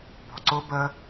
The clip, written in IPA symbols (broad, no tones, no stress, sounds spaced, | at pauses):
b ɔ̤ ǀ ʊ b ə